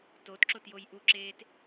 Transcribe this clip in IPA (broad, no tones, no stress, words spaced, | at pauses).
totǁotjoj ʔuǁeːt